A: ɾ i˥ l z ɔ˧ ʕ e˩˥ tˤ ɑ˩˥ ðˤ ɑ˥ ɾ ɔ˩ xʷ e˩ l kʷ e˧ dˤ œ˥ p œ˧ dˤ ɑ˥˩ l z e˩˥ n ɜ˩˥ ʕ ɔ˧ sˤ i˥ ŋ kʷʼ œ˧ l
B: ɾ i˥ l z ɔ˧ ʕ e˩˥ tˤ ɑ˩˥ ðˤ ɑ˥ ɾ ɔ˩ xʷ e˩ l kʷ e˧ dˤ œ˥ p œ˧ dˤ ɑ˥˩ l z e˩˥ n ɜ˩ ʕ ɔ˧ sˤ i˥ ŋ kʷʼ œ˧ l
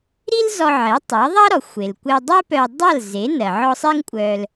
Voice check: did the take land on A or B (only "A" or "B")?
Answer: B